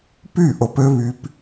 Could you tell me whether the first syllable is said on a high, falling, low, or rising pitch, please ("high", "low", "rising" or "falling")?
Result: falling